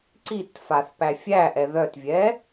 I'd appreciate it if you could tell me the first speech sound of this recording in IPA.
ǀ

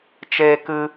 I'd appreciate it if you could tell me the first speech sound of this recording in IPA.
t͡ʃ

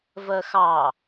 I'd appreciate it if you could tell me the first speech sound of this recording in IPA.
v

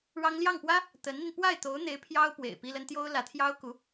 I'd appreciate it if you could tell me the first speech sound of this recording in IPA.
ɻ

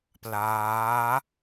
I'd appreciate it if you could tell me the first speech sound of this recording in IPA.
p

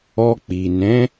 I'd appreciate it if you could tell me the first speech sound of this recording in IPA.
ɔ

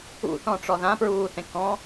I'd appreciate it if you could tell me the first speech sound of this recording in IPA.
ṵ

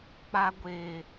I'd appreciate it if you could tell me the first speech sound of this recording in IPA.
k͡p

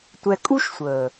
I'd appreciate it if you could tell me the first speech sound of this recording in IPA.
tʷ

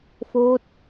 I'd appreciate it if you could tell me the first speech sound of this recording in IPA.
f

